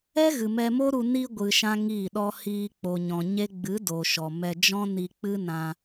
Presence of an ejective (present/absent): absent